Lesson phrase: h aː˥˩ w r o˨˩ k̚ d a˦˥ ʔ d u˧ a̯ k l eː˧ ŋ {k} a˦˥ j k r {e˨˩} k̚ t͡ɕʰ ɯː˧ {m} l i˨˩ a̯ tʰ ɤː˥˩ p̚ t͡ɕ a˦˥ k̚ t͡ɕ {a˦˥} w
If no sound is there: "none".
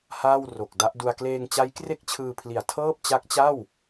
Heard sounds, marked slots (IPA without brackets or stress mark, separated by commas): t͡ɕ, e˥˩, pʰ, a˥˩